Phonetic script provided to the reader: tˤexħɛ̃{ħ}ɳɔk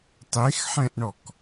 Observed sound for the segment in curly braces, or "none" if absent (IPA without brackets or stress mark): ʔ